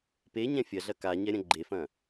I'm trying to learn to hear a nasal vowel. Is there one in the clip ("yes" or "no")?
yes